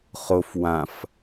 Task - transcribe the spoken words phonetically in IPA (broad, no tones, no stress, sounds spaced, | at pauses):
χ o f w ã f